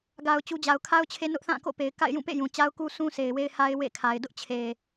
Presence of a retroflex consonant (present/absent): absent